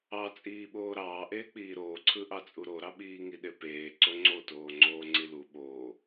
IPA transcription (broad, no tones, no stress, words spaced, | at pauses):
ɑt͡sʼiːɓoː ɾɑːʔeː k͡piːɾoːǀʰɯ ʔɑt͡sʼuɾoɾɑ ɓiːŋiɗepeː ǀoŋ͡ǀotoː ŋ͡ǀoːŋ͡ǀilu ɓoː